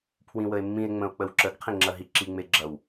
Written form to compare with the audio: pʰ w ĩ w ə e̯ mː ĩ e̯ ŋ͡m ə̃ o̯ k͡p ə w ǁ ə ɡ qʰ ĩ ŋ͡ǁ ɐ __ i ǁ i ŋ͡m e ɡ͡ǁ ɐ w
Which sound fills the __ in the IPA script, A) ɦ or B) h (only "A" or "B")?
A